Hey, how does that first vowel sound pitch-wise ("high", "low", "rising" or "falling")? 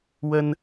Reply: high